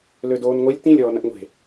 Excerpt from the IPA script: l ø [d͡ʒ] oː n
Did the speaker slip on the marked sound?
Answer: yes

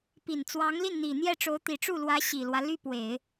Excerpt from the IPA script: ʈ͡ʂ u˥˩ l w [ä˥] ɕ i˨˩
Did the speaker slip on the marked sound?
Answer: yes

